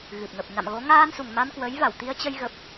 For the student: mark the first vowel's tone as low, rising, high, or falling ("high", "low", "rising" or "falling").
low